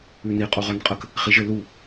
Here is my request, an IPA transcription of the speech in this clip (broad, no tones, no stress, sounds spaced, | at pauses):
ʉ n i qʼ u ʁ œ n qʼ ə k | χ i ʒ ɘ l u